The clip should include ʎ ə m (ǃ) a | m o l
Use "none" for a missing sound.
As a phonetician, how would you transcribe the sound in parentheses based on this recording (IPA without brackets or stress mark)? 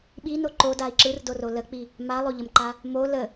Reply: ǃ